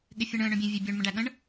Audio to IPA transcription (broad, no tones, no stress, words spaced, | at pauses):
ɠɪfʲəɳə̃ː ɳœ̃bʲẽvʲebʲœɳ mə̃ɖæɠə̃ɳ